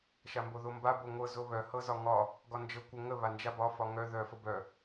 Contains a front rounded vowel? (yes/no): yes